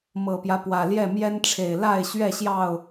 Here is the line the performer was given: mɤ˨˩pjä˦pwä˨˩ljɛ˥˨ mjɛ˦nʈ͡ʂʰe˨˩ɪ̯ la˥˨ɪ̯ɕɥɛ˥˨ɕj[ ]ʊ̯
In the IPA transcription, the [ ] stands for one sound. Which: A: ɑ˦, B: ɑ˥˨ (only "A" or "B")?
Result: B